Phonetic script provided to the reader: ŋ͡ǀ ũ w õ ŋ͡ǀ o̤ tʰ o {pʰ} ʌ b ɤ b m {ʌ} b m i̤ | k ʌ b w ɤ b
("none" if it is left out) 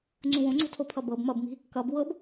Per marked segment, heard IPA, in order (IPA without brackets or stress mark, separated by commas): pʰ, ʌ